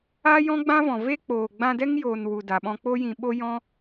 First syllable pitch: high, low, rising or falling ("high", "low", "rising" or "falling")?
high